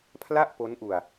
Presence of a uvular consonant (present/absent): absent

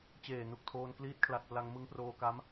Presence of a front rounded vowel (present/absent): absent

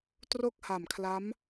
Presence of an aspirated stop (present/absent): present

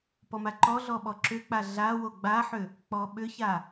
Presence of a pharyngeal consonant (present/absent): present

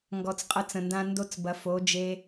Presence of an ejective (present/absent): present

